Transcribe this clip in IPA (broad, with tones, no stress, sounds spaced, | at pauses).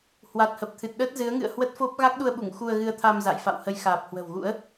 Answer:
h w a˨˩ t̚ h ə˨˩ p̚ t̪ʰ ɨ˨˩ t̚ ɗ əː˦˥ t̚ z ɨ˨˦ ə̯ ŋ ɨ̰˧˨ ə̯ h w ə˦˥ t̚ f o˦˥ p̚ ɣ a˦˥ k̚ ɗ u˧ ə̯ ɓ u˧˩ ŋ x u˧ ə̯ ɣ ɨ˧ ə̯ t̪ʰ a˧ m z a̰˧˨ j f a̰˧˨ w h ə˨˦ j x aː˨˩ p̚ h w ə̤˨˩ w ɣ ṵ˧˥ ə̯